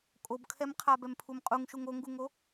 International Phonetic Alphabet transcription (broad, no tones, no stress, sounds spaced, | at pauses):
kʼ o b kʰ ɛ m qʰ a b ɛ m pʰ u m qʼ u ŋ ʃ u ŋ o ŋ ɡ u ŋ o